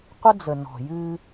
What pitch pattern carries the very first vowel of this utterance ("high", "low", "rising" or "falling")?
high